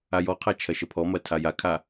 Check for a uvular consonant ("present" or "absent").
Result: present